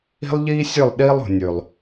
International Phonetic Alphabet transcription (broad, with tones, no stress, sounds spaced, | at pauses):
i̤˦ lˠ ʎ iː˦ sʲ ʉ˦˨ lˠ ɗ iː˦ lˠ ṳ˨ nʲ ʉ˨ lˠ